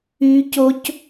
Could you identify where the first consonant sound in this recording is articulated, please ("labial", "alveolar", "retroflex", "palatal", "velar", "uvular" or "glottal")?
palatal